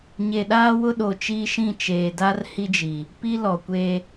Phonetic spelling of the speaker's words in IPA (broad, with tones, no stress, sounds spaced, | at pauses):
ɲ e˨ ɗ aː˦ w ʊ˦ ɗ o˨ t͡ʃ iː˦ ʃ ĩ˦˨ t͡ʃ eː˨ d a˦ r h i˦ d͡ʒ i˨ | p i˦ l ɔ˨ kʷ e˦